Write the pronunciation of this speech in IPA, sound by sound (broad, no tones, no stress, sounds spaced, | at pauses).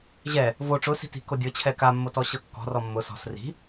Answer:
ʑ ɛ | v o ʈ͡ʂ ʊ s i̤ t i̤ k o dʲ ɤ t͡ɕʰ ɛ k a mː o t ɔ ɕ ɤ kː ɔ̤ r ɔ mː ʊ s ɔ̤ s r i̤